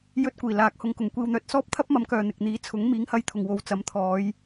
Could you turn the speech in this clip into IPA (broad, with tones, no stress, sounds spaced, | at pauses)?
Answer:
j ɵ˧ t̚ kʷ iː˨˩ l aː˨˥ k̚ h ʊ˨˧ ŋ k ʊ˨˩ ŋ kʷ iː˨ w n̪ œː˨ t̚ s ɔː˥ p̚ t̪ʰ ɐ˥ p̚ m ɐ˨˧ m k œː˨ n̪ ɪ˨ k̚ n̪ iː˨˥ t͡sʰ ʊ˨˥ ŋ m iː˨˥ ŋ h ɐ˧ j t̪ʰ ʊ˨˩ ŋ w o˨ w t͡s ɐ˨˥ m t̪ʰ ɔː˨˧ j